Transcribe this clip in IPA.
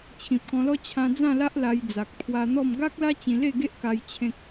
t͡ɕʰ ĩ˨ p̚ k ɔ̃˧ l ɔ˦ t͡ɕʰ ã˧ d͡z ã˥˧ l a˦ ʔ l a˧ j d͡z a˨ k̚ pʰ w a˧ n̪ ɔ˥˧ m ɡ a˦ k̚ l a˦ t͡ɕ ĩ˧ l e˥˧ ɡ e˦ ʔ k a˧ j t͡ɕʰ ẽ˦ k̚

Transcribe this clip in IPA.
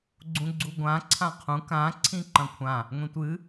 ɡ͡ǀ ũ ɡ͡ǀ u ɡʷ ã ǀʰ ã qʰ ũ k ã ǀʰ ĩ ǃ ɐ̃ kʷʰ ã | ŋʷ ĩ tʷ ɨ

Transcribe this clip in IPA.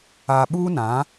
a˨ ɓ uː˦ n ã˨˦

